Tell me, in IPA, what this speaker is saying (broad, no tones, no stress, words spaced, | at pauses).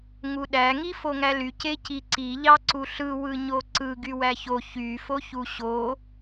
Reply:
ŋuɗæ ŋifoŋæly ceciǀi ʎɑǀuɬɯ wɯɲoǀɯ ɡywæço çy foçuɕo